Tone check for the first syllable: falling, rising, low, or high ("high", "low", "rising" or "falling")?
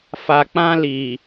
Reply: low